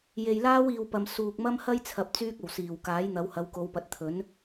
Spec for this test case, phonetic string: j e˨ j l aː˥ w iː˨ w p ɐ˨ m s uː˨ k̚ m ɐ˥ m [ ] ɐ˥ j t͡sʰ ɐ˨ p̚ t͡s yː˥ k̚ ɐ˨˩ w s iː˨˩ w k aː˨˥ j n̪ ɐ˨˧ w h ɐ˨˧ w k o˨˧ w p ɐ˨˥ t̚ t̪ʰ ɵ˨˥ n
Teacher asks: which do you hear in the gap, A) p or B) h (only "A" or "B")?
B